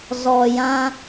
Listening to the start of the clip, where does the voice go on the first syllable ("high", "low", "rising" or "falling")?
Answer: low